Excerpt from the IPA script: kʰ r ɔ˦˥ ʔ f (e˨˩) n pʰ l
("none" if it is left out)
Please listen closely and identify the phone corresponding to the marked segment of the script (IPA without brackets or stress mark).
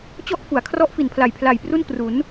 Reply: i˨˩